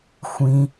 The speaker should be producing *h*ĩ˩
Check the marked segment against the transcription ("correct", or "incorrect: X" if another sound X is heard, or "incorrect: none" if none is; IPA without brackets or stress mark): incorrect: xʷ